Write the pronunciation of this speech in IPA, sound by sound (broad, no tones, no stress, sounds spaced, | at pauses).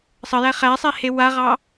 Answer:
sˤ ə j æ χ æ sˤ e h e w a ʁ ɑ